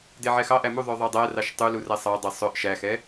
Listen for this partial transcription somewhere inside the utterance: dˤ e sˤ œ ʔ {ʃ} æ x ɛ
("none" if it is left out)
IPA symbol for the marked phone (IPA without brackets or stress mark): ʃ